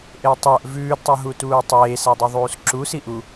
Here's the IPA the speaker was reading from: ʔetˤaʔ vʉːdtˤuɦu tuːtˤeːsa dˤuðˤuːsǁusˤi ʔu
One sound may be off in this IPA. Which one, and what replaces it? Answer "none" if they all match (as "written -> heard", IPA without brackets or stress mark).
sˤ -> s